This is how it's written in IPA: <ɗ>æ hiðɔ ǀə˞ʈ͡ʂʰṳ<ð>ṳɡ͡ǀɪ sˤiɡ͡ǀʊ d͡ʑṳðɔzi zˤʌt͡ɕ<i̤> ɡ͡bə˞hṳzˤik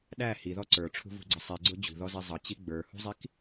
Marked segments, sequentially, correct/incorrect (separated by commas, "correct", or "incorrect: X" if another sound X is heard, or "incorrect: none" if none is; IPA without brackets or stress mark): correct, incorrect: v, incorrect: i